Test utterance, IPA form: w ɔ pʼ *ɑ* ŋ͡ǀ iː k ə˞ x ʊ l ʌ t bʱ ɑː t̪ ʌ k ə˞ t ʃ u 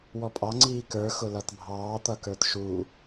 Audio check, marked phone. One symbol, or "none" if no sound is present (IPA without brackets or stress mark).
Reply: ɑ